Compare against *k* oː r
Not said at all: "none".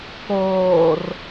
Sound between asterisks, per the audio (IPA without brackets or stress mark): k